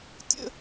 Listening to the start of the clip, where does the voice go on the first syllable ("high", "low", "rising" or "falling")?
high